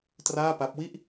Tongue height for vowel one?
low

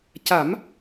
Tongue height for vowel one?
low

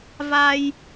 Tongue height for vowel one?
low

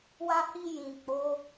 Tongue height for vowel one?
low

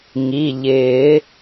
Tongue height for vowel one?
high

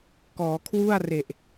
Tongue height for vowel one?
mid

